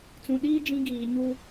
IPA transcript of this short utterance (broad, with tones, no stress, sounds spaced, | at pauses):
t͡s ũ˨ ɗ iː˦ d͡ʒ ĩ˦ ɡ iː˨ ɲ u˦